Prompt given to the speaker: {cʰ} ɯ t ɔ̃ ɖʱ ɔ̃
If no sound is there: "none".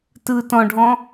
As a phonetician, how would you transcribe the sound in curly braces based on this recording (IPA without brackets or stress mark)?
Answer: t